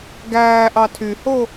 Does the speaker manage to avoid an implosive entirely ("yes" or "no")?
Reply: yes